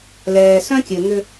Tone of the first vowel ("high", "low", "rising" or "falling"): low